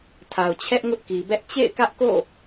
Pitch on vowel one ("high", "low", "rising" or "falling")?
low